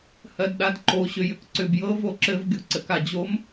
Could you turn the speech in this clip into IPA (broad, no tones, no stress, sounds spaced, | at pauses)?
h ɜ d ɗ a d ǃ o ɕ ʏ j ʏ k ǀ ʏ b j ɤ v o ǁ ɘ v ɡʲ o ǀ ɘ k a d͡ʑ o m